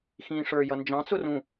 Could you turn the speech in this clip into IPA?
x ĩː ʂ ə˞ j ʌ n d͡ʒ ɑ̃ t͡s ʊ r ũ

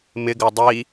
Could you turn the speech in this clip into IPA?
m ɪ ɡ ɜ dˤ i

